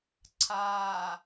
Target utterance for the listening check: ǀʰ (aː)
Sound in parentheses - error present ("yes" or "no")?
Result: no